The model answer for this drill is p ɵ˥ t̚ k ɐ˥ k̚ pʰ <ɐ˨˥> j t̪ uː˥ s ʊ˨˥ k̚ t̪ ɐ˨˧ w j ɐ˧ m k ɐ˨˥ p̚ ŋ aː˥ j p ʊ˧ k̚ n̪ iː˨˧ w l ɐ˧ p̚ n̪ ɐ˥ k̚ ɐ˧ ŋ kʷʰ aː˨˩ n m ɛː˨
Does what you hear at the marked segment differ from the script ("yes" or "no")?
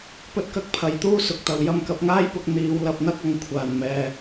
no